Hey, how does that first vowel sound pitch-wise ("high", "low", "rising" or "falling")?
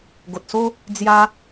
low